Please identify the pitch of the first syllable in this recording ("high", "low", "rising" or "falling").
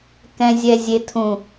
low